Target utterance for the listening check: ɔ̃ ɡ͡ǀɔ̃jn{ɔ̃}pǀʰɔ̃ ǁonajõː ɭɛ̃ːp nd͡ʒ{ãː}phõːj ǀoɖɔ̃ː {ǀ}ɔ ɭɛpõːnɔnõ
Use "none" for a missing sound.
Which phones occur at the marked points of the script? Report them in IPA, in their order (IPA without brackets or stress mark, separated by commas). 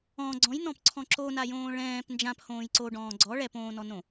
ɔ̃, ã, ɡ͡ǀ